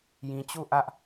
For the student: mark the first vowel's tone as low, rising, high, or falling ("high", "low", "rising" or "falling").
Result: low